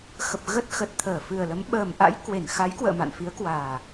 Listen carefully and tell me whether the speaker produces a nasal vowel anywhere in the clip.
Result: no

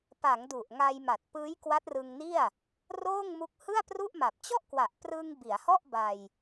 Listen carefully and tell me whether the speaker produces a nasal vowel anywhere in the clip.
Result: no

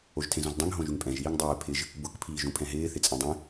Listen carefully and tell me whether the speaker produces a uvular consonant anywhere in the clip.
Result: no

